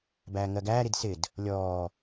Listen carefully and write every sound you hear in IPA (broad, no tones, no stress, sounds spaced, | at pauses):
b æː ŋ ɜ ɡ æː ɾ i d s ɪ d | lʲ ɔː